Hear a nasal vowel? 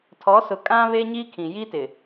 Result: yes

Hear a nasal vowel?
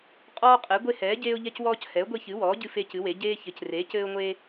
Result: no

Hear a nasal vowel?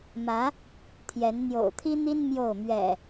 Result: no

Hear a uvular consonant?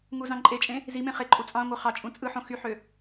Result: yes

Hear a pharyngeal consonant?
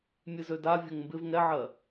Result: yes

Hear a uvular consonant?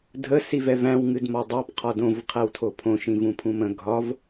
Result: yes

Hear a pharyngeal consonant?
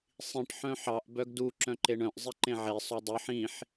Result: yes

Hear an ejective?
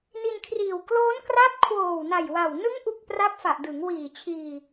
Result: no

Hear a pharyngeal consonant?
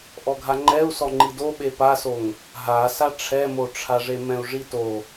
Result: no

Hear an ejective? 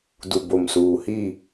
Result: no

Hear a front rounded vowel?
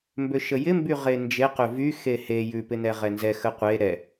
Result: yes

